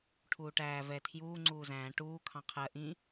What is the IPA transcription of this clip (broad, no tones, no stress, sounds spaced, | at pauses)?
ʈʰ uː ʈ æː v ɛ tʰ j uː ŋ͡ǀ uː z æ̃ː ʈ uː kʰ ɑ̃ qʰ ɜ ʔ ĩ